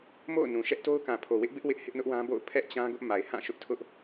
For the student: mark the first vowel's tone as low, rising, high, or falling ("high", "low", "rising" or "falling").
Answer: falling